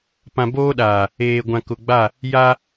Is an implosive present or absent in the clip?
present